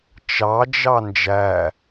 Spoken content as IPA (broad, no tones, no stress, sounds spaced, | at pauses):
t͡ʃ ɑ d͡ʒ ɑ n d͡ʒ æ